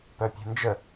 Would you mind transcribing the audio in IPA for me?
p œ pʲ e̤ n d͡ʒ ə

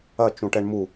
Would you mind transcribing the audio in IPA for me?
ɐ t͡ʃ ũ ʈ ɛ ɳ m u

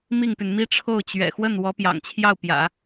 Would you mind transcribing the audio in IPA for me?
m i˥˩ ŋ p y˩ n m i˥ ʈ͡ʂʰ o˥˩ ʊ̯ t͡ɕ ɥ ɛ̰˨˩ x w ə˥˩ n w ɔ˧˥ p j ɑ̰˨˩ ŋ t͡ɕʰ j ɑ˥˩ ʊ̯ p j ä̰˨˩˦

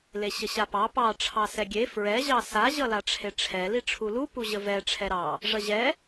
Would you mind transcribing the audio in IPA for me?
l e ɕ ə ɕ a p ɑ p ɑ ʈ͡ʂʰ ɑ s ɛ ɡʲ e f ɹ ɛ ʑ ɑ s a ʑ ʌ l a ʈ͡ʂʰ e ʈ͡ʂʰ ɛ l i ʈ͡ʂʰ u l u p u ʑ ə v ɛ ʈ͡ʂʰ ɛ ɾ ɑ | ʐ ʌ ʑ ɛ

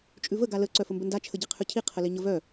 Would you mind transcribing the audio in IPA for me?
t͡ʃʼ ʉ v ə ɡ a l ə ǀ œ f ə m b ə n d a t͡ʃʰ ə ɟ i qʰ ʉ cʰ i qʰ ə l i ɲ ə v œ

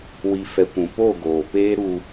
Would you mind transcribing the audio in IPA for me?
w i˨ f ɛ˨ kʷ ũ˨ p o˦˨ ɡ oː˨ p eː˦ ɾ uː˨

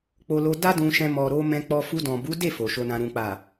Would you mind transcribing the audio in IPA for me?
k͡p o˧ l o˧ d a˦ d ũ˧ ʃ ɛ̃˧ m ɔ˨ ɾ o˧ m ɛ̃˦ k͡p ɔ˦ f u˧ d ɔ̃˨ b u˨˦ d e˦˨ f o˨ ʃ o˧ n ã˧ ɾ ũ˨ k͡p a˨

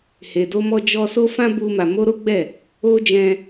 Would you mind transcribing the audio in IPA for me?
h e˨ d o˧ m ɔ˧ d͡ʒ ɔ˧ s o˦ f ã˦ b u˧ m a˨ m o˧ ɾ o˦ ɡ͡b ɛ˦˨ | o˧ d͡ʒ ɛ̃˧

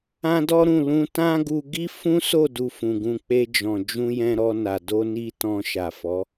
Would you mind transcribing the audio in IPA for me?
ã˦ d ɔ˦ ɾ ũ˦˨ l ũ˧ t ã˦ ɡ u˧ ɡ i˦ f ũ˦ s o˦˨ d u˧ f ũ˨ ɡ ũ˧ k͡p e˧ d͡ʒ ɔ̃˨ d͡ʒ ũ˧ j ɛ̃˧ ɾ ɔ˧ n a˨ d o˧ n i˧ t ɔ̃˧ ʃ a˨ f ɔ˨˦

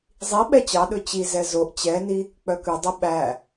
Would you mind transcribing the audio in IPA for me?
zˤ i ɓ ɛ t͡ɕ ɑ ɗ ɵ t͡ɕ i z ɛ z o ʔ t͡ɕ ɛ n i | k͡p œ k ʉ dˤ e ɓ æ

